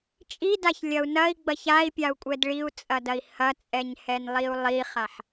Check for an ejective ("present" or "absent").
present